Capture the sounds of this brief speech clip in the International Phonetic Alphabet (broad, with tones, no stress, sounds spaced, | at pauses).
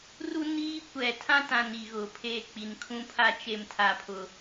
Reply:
r u˦ n iː˦ kʷ ɛ˨ tʰ ã˦ t ã˨ n i˨ ɣ ʊ˨ pʰ e˦˨ k͡p i˨ n kʰ ũ˦ pʰ a˦ t͡ʃ e˦ m tʰ a˦ pʰ ʊ˦